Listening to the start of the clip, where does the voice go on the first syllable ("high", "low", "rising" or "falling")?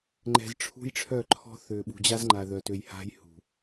low